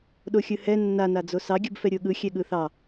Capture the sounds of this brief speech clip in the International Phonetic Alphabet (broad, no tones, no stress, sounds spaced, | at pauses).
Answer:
ɗ o xʲ ɯ h ɛ nː a n a d͡z o s ɑ ɡʲ ɯ b f ɛ ɾʲ o ɠ ɯ xʲ ɛ ɠ ɯ θ ɑ